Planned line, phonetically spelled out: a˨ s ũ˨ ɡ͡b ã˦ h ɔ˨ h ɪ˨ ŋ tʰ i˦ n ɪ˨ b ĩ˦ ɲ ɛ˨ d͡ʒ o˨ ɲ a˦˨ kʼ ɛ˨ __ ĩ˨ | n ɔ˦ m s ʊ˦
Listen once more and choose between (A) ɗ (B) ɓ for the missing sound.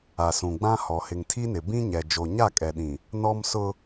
A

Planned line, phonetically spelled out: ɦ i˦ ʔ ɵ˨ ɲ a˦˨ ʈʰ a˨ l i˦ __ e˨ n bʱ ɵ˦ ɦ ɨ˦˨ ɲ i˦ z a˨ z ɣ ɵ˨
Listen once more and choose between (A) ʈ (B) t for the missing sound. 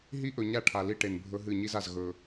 A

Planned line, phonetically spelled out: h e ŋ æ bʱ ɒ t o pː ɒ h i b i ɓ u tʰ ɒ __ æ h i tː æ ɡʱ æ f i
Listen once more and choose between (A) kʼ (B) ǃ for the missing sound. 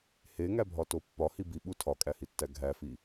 A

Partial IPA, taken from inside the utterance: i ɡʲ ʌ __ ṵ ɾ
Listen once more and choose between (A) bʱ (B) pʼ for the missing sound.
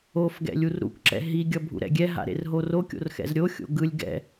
A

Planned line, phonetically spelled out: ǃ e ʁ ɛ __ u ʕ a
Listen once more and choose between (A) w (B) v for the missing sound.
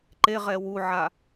A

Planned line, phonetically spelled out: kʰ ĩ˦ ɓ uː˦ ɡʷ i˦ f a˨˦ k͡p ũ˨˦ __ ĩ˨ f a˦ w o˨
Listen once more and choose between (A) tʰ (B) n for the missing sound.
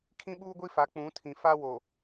A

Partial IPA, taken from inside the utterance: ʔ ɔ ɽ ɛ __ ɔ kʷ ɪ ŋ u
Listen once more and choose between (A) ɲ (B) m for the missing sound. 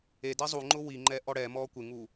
B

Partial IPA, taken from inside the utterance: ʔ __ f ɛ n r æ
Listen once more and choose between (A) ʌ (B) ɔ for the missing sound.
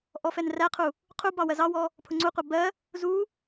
B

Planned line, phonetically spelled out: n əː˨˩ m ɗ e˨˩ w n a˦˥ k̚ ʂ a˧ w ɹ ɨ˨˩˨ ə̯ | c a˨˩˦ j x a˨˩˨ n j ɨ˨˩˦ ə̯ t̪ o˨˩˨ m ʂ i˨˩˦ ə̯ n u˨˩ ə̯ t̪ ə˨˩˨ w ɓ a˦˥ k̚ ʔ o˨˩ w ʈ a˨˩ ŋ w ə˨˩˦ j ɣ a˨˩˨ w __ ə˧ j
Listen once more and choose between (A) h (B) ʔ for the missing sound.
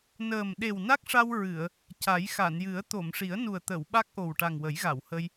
A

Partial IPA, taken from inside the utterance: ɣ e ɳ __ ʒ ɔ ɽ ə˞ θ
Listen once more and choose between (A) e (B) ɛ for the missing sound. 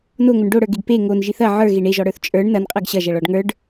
A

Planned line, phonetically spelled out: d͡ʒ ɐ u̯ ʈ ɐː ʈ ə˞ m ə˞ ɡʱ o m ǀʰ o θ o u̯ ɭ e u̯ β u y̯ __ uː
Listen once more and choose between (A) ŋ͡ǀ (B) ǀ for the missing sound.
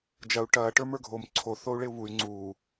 A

